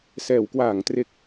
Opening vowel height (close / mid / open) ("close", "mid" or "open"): mid